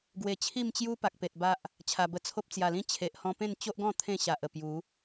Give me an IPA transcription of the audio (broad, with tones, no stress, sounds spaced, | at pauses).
ɡ w e˨˩ t͡ɕʰ i˥˧ m t͡ɕ j u˦ p a˨ k̚ p e˨ t̚ b a˦ ʔ | t͡ɕʰ a˨˩ b ə˧ t͡sʰ o˦ p̚ t͡s j a˨˩ l ĩ˦ t͡ɕʰ e˨ ʔ h ɔ̃˧ p ẽ˥˧ n t͡ɕ o˦ ʔ ɡ ɔ̃˥˧ t̪ʰ ẽ˥˧ ɕ a˨ ʔ ə˨˩ p j u˨˦